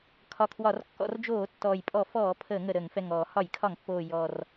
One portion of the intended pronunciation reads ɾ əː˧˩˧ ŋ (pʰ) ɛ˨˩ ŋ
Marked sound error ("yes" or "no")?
yes